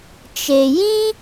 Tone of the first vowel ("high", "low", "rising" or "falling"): low